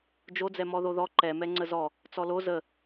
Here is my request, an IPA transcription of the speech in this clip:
d͡ʒ o d͡z ɛ m ɔ ð o ð ɔ ǃ ɛ m ɛ ŋ͡ǀ ə z ɔ | t͡s ɔ l o z ə

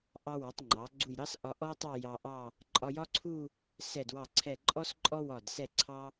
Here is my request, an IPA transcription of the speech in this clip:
ʔ ɑ˧ w ɒ˩˧ tˤ ŋ͡ǃ ɑ˩˧ ɡ͡ǀ u˧˩ j ɾ ɑ˥ s ʔ ɒ˧ ʔ ɔ˥ j tˤ ɑ˥˧ j ɑ˧ ʔ ɑ˥˧ | ǃʼ ɒ˧ j ɒ˥ ǀʰ u˥˧ | s ɛ˧˩ d w ɑ˧˩ ǀʰ ɛ˧˩ ǃʼ ɔ˥ s ǃʼ ɔ˥ w ɒ˧˩ d s ɛ˧˩ ǀʰ ɑ˧

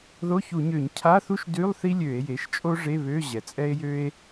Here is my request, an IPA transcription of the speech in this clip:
ð o˧˥˧ ç u˧˩˧ ɲ ø˧˩˧ ɲ cʰ a˧˥˧ θ u˥ ʃ d y˧˥˧ lˠ θ i˥ lʲ ø˧˩˧ e̯ j e˩˥ ʃ t͡ʃʼ o˥ ʐ e˧˥˧ β ø˧˥˧ ʑ ɛ˩ t͡sʼ ɛ˥ e̯ j ø˥ e̯

